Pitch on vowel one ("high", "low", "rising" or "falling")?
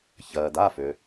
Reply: low